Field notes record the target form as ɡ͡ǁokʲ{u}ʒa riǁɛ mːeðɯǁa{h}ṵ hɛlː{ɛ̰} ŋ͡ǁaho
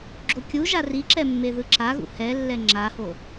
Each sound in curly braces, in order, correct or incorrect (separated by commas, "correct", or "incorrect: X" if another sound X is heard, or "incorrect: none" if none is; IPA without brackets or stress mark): correct, incorrect: ɣ, incorrect: ɛ